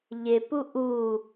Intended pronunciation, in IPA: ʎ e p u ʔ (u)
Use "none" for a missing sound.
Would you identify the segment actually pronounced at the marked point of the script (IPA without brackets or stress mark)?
u